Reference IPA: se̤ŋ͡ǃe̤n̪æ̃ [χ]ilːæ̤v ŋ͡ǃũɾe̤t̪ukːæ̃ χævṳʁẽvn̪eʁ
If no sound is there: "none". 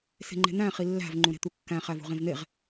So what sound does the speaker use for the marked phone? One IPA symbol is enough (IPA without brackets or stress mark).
χ